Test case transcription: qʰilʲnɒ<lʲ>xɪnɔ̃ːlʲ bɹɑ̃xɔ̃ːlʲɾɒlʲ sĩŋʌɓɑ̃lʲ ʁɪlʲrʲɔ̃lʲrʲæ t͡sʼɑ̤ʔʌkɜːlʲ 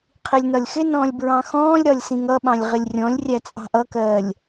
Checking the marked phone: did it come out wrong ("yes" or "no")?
no